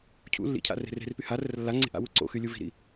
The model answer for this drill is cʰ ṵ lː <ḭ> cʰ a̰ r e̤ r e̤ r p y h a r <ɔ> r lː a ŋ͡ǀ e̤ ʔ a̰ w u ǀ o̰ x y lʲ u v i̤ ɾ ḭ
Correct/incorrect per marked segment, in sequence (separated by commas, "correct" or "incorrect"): correct, incorrect